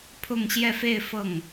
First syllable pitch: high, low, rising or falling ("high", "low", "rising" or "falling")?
falling